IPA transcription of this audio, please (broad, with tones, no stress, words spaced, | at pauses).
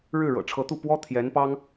ɻɻ̩˥˩ɻɤ̰˨˩ʈ͡ʂʰɤ˧˥t̪u˥˩ pwɔ˥t̪ʰjɛ˧˥npɑ˥ŋ